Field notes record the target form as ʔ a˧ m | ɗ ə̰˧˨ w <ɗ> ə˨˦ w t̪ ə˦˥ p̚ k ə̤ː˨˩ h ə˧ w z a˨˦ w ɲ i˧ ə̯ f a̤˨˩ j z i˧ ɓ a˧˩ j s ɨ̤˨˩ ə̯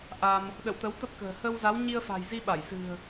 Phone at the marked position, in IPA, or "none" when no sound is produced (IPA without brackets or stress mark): t̪